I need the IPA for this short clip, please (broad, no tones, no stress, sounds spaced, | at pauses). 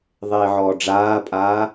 ðˤ eː ʕ ɔː ɖ͡ʐ aː pʼ aː